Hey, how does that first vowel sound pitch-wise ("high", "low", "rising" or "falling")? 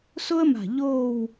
high